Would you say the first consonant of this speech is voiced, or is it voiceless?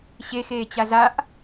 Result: voiceless